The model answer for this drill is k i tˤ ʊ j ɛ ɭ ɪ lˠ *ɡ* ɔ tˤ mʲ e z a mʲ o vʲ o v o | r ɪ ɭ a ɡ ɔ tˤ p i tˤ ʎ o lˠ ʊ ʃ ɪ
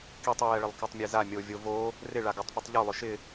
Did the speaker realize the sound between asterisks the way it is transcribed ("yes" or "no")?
no